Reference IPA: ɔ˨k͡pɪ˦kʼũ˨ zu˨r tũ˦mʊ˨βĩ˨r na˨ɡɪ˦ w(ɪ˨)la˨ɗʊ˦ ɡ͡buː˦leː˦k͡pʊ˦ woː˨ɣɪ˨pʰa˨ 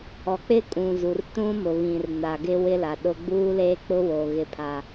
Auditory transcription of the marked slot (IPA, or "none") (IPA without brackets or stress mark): ɪ˦